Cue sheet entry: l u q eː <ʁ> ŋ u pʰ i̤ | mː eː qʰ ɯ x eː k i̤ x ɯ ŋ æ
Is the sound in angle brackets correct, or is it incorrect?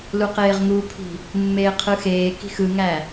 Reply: correct